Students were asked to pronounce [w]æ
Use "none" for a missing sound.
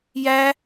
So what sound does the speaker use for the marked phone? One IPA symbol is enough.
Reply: j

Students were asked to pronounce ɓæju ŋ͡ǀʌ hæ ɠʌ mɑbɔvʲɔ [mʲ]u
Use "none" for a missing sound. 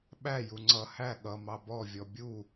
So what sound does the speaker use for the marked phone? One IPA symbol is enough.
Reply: bʲ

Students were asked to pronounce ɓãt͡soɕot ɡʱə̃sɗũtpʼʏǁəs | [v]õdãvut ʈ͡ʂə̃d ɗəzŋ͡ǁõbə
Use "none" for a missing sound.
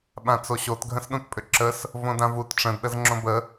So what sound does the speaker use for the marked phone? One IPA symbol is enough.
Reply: v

